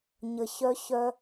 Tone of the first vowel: low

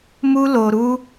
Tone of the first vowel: high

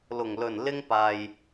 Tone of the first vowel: low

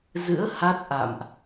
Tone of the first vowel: rising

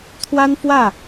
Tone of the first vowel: high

